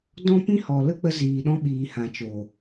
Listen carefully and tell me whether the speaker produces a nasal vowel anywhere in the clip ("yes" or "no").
yes